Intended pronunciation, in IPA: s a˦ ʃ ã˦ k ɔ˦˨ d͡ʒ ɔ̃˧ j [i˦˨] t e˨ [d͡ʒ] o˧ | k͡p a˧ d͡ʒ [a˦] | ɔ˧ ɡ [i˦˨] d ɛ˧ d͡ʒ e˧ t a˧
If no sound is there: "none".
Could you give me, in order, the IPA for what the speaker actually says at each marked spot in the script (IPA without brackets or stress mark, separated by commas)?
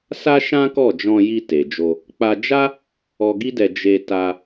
i˧, d͡ʒ, a˦, i˦